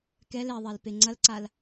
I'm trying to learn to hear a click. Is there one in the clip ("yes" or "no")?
yes